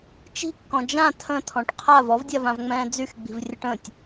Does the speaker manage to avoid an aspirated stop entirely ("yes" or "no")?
no